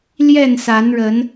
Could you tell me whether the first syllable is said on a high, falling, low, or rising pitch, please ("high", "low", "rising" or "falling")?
falling